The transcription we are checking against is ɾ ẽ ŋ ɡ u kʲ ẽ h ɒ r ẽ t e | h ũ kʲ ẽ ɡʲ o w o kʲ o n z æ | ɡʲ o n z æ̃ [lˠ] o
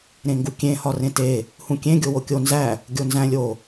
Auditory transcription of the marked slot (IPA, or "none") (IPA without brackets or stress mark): lʲ